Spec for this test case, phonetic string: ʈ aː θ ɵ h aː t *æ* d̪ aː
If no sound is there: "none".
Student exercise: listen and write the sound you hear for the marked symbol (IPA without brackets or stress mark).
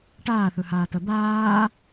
ɐ